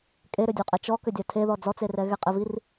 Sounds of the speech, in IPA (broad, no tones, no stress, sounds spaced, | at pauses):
kʼ e ɾ ʏ dʲ u qʼ ɛ t͡ʃ ɔ k ʏ dʲ a tʰ e ð ɔ d͡z ɔ t͡s e r ɛ ɣ ɛ qʼ e v i r